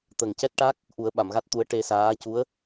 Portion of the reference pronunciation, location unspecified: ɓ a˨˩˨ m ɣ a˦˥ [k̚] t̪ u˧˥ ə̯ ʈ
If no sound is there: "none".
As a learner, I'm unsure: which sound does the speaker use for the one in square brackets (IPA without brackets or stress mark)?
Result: t̚